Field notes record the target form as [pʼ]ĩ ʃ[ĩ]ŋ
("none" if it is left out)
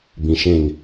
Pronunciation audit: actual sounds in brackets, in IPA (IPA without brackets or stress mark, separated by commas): b, ẽ